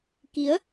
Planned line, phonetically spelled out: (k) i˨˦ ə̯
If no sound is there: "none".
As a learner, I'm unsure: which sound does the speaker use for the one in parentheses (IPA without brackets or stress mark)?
k